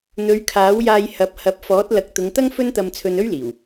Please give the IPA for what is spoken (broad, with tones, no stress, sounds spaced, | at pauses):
n̪ ɵ˨˧ ɥ kʰ aː˨˥ w j aː˧ j h ɐ˨˥ p̚ h ɐ˨˥ p̚ f ɔː˨˥ t̚ l ɐ˨˥ k̚ t̪ ʊ˨˧ ŋ t̪ ɐ˥ ŋ f ɵ˥ n t̪ ɐ˧ m t͡sʰ ɵ˧ n ɵ˥ ɥ l iː˨˩ w